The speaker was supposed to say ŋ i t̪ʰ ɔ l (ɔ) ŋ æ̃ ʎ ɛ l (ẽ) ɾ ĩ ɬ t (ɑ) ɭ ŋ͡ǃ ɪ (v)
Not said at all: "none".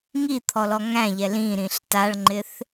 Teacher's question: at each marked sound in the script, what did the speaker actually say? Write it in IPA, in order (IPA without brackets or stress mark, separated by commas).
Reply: ɔ, ĩ, a, θ